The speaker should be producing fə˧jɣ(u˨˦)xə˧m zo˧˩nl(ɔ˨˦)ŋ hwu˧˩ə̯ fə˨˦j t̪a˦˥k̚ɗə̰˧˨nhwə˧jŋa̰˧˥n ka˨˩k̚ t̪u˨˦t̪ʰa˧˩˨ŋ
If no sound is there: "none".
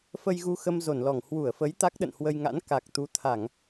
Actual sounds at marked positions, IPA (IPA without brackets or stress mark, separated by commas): u˧, ɔ˧˩